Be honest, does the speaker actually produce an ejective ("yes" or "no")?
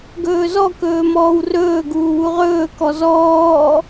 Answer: no